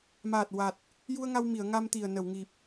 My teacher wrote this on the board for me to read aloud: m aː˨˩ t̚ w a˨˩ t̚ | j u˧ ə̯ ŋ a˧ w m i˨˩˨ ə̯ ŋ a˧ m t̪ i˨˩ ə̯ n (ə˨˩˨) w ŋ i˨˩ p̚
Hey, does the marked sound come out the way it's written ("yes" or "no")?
yes